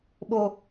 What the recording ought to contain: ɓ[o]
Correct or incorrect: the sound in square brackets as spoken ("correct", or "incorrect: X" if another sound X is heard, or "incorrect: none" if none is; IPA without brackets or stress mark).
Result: correct